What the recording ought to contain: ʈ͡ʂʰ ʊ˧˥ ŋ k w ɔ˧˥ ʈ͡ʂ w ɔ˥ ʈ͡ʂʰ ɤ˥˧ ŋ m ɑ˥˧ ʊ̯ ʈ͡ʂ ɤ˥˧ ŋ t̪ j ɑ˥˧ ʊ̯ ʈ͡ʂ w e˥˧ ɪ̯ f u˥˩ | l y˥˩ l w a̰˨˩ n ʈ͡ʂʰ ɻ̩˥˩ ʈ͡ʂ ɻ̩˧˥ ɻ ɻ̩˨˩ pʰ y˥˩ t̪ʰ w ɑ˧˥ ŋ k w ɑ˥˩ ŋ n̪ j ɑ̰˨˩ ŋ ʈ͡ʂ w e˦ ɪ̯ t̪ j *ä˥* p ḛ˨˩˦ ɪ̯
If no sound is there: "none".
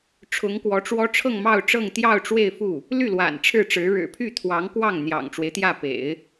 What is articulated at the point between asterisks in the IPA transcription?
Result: ä˥˩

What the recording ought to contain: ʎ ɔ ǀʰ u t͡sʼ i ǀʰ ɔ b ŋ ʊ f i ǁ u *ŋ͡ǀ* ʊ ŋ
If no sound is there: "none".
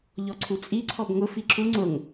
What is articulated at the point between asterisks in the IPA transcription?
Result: ŋ͡ǀ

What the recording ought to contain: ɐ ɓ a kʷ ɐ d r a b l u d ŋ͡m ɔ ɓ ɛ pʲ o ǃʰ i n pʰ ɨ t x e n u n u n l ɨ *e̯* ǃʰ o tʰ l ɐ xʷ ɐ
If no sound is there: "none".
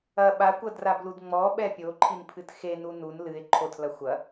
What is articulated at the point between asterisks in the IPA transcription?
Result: e̯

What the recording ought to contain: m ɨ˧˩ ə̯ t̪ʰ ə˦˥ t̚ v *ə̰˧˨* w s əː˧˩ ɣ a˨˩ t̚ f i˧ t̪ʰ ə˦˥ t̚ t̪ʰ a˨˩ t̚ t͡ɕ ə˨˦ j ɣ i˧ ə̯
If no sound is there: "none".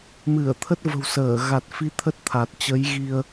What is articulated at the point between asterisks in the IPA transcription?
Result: ə̤˨˩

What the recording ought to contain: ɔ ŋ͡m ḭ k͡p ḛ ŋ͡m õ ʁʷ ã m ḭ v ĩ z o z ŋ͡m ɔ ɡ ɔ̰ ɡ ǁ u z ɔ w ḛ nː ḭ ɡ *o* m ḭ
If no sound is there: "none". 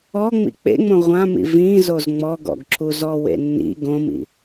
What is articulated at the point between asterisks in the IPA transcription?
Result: õ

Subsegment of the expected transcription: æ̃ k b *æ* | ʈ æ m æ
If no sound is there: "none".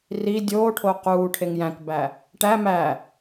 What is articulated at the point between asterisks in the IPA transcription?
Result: æ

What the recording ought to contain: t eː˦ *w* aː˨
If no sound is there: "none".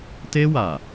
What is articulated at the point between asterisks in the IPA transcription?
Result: w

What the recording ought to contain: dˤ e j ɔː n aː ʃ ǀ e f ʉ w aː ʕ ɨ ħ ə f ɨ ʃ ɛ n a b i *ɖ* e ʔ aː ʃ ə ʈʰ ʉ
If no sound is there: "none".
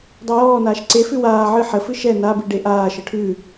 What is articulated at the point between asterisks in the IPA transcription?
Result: ɖ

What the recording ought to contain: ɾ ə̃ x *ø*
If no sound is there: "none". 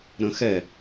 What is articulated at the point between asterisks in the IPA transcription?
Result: ɛ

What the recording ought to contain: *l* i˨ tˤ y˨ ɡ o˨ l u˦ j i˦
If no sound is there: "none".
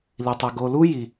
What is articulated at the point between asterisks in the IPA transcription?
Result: l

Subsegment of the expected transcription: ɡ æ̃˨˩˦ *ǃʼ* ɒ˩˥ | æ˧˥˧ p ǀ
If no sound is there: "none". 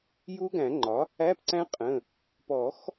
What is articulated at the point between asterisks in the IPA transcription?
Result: ŋ͡ǃ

